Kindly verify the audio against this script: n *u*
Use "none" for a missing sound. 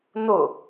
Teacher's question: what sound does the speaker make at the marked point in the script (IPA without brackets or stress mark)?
ʊ